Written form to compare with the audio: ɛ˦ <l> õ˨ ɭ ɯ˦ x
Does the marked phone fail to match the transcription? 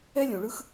yes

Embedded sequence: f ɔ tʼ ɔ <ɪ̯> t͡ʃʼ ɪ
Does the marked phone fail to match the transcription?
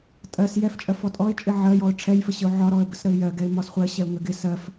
no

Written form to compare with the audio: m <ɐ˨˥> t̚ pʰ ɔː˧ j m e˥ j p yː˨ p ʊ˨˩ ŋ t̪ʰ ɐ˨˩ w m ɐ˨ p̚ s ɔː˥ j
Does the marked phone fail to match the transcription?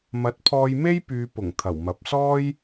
no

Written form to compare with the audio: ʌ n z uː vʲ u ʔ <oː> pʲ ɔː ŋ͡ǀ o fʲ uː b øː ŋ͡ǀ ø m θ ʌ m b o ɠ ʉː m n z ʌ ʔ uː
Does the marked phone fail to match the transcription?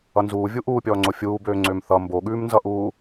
yes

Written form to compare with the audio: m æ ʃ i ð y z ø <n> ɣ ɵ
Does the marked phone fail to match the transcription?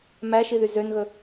no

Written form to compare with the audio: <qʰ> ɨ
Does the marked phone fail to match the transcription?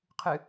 no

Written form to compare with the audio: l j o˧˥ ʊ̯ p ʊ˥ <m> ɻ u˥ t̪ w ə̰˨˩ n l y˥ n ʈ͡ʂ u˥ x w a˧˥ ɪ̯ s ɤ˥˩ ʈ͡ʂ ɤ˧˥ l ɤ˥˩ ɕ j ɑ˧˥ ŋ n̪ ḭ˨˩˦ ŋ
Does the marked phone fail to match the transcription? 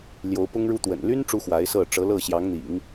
yes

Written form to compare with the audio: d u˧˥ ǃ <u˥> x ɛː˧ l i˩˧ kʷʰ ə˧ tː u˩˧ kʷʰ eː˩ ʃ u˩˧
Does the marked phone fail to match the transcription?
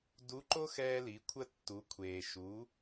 yes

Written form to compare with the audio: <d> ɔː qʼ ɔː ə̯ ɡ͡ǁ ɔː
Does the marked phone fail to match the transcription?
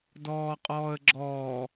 no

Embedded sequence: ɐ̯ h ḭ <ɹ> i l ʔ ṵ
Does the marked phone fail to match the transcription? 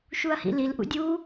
yes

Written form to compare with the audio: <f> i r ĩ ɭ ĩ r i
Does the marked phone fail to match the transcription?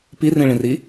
yes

